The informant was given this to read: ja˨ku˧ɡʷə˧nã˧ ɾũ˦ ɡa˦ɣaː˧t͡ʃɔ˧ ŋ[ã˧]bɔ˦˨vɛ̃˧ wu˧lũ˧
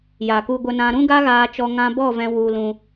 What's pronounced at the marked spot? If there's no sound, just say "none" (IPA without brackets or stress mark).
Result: ã˧